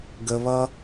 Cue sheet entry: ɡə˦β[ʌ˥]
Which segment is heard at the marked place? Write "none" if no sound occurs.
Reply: ʌ˥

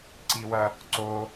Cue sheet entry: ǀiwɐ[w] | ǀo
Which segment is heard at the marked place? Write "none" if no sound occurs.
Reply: none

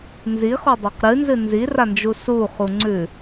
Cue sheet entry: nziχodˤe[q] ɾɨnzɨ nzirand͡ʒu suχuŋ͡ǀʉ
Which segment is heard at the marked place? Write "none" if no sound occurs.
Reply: q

